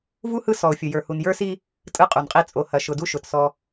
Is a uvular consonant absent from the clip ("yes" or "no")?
no